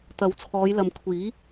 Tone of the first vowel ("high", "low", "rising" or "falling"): rising